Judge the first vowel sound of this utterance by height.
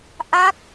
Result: low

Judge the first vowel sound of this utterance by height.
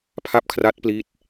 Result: low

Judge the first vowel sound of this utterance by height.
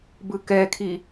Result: high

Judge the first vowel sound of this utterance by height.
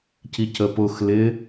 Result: high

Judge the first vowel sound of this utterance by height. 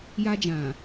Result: low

